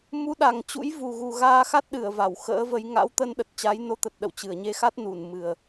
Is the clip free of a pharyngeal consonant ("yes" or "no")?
yes